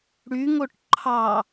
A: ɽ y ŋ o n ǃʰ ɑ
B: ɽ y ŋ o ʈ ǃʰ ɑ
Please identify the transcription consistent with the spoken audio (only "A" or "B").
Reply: B